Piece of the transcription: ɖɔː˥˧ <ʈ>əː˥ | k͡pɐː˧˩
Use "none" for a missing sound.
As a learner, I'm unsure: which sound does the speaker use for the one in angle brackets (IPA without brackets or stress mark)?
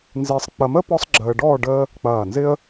ɖ